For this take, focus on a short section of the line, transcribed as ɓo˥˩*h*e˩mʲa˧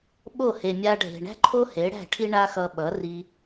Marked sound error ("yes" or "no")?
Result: no